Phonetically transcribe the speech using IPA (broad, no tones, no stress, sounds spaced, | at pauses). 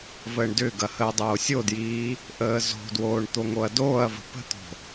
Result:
v əː ɳ d ʏ ɡ ɐ h əː dˤ oː sʲ o d j iː | ʔ əː z o̤ d w oː ɳ t̪ o ŋ o ɐ̯ d oː ɐ̯ v ə̤ p ə̤ t̪ o̤